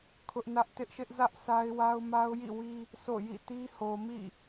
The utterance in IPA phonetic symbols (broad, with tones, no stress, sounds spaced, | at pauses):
kʰ ʊ˦ ʔ n ä˦ ʔ t ɪ˦ ʔ ʃ ɪ˦ ʔ z ä˦ ʔ sʰ a˦ ɪ̯ w a˦ ʊ̯ m a˦ ʊ̯ j ḭ˦˨ w i˦ | s o̰˦˨ j ḭ˦˨ t i˦ h o˨ m ḭ˦˨